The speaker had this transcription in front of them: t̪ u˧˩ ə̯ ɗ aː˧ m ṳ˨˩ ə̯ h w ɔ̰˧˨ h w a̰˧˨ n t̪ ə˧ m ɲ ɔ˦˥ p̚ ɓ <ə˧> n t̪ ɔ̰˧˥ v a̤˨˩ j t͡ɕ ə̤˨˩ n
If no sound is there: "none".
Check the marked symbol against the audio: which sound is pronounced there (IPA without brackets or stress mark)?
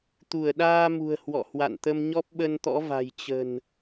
ə˧